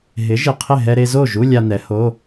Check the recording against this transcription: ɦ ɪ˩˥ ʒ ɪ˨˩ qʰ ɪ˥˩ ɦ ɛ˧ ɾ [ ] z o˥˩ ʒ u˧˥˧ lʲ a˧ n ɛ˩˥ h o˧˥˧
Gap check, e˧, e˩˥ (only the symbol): e˧